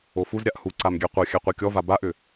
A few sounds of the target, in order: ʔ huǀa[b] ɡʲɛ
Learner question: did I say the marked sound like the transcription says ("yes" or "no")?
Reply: no